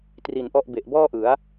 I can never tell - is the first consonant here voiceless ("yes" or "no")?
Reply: yes